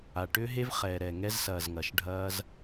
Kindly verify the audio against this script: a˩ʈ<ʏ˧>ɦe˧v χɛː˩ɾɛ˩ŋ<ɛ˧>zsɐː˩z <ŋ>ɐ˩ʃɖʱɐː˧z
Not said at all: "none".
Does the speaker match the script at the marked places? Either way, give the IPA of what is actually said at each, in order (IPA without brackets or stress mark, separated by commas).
ʏ˧, ɛ˧, ŋ